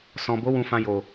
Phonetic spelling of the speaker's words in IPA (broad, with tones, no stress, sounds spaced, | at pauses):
s ɔ̃˨ b o˨˦ w ũ˧ f ã˧ j o˨